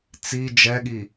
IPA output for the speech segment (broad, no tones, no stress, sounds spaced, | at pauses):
t͡s i d͡ʒ ɛ ɠ i